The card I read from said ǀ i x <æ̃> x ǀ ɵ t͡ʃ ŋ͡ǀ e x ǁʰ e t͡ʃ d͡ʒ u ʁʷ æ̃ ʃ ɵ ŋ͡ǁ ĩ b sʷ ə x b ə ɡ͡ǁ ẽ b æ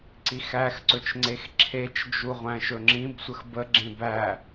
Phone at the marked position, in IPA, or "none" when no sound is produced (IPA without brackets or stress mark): æ